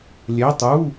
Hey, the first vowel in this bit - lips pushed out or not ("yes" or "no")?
no